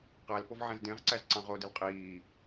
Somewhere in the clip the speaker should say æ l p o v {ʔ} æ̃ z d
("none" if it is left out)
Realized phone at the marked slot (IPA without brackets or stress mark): ʕ